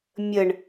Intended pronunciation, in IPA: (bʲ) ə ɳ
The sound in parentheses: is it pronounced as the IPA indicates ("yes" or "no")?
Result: no